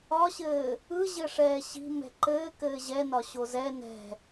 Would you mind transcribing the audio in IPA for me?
ɒɕɘː | ɯʑɘʂɛː ɕi̤ mɛ̤ǃɘːkɘː ʑɛnɒ ɕozɛ nɛ̤

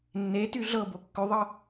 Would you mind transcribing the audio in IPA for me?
nːety ɮɤbo kːʏðˤɤ

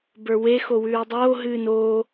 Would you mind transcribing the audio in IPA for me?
bə˞we xowʉːdˤoː ɦɨːnoː

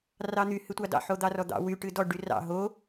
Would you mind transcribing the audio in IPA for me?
rɑn̪y hɨtʷɑdɑ̰ ħod̪ɑrɔd̪ɑ̰ wy ʈɨdɔ ɖyrɑ̰ ɦo

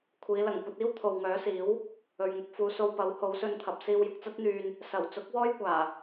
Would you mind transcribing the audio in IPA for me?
kʷʰiː˨˧ lɐ˨˩ŋkʷɐ˧t̚ iː˥wt̪ʰo˨wŋœː˨˥siː˨˥w | ɵ˨ɥŋʊ˧k̚fuː˨˧so˧w pɐ˨˥who˨˥wsɵ˧nt̪ʰɐ˨p̚ siː˧wjʊ˨k̚t͡sɐ˥t̚n̪yː˧n | sɐ˨˩w t͡sʊ˨˥k̚ wɔː˥jkʷaː˨˩

